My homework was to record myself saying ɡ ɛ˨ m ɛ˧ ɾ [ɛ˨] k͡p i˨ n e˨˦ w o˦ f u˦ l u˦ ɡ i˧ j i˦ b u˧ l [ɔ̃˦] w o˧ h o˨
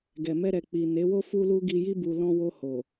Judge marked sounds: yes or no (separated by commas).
yes, yes